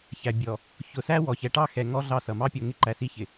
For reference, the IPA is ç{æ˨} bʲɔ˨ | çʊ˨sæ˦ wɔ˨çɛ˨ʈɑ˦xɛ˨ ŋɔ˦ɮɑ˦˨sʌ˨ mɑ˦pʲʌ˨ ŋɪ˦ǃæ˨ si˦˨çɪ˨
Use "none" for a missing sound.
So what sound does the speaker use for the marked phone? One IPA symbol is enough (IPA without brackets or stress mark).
æ˨